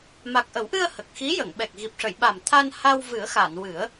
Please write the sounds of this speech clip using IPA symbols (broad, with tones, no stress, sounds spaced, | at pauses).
m a˨˩ k̚ ʔ ə˨˩˦ w ʔ ɨ˧ ə̯ h ə˨˩ k̚ x i˧˥ j ə˨˩˨ ŋ ɓ ɛ˨˩ k̚ ɣ i˨˩ p̚ ʂ ə˨˩˨ j ɓ a˨˩ m t̪ʰ a˧ n h a˧ w v ɨ˨˩˦ ə̯ x a˨˩˨ n w ɨ˨˩˦ ə̯